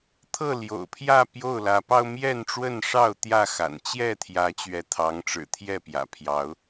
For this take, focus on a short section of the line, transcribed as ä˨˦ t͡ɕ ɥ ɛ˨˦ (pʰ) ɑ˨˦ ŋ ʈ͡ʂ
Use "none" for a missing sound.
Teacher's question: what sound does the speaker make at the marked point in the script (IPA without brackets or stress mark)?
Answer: t̪ʰ